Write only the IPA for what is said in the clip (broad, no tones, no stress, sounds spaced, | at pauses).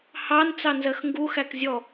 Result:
h ɑ n t͡s ɑ n z ɜ x ŋ ɡ u x æ k zʲ ɔ